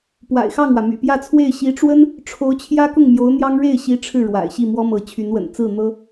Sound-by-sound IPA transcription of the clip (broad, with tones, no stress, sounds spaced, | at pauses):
p w a̰˨˩ ɪ̯ x ɑ˥˩ ŋ w ä˩ m y̰˨˩ p j ä˥˧ t͡sʰ w e˥˩ ɪ̯ ɕ i˧˥ ʈ͡ʂ w ə˥ n | ʈ͡ʂʰ o˧˥ ʊ̯ t͡ɕʰ j ä˥ k ʊ˥˩ ŋ m j o˧˥ ʊ̯ n̪ j ɑ˥ ŋ ɻ e˥˩ ɪ̯ ɕ i˧˥ ʈ͡ʂʰ ɻ̩˥˩ ɻ w a̰˨˩ ɪ̯ ɕ i˥˩ m w ɔ˥ m ɤ˧˥ t͡ɕʰ y˧˥ n w ə̰˨˩ n t͡s ɹ̩˥˩ n̪ ɤ˥